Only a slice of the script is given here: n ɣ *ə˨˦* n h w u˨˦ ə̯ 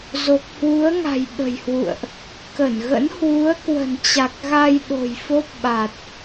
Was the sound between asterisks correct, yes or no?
no